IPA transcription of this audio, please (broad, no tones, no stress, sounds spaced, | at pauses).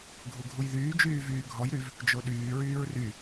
ɡʱ u ɡʱ u j ð yː d͡ʒ yː v yː ɡʱ ɔ j ɾ y v | d͡ʒ o ɗ yː ɹ yː ɹ r y